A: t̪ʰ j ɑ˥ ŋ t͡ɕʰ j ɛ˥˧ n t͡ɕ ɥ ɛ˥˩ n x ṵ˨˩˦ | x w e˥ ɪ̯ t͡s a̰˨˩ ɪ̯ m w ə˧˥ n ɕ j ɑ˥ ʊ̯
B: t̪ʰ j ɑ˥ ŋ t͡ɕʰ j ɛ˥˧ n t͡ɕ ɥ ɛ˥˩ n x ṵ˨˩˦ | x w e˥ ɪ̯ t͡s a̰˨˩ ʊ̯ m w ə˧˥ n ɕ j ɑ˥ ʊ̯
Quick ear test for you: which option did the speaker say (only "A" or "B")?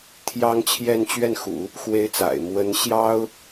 A